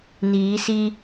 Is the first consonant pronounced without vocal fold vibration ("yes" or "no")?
no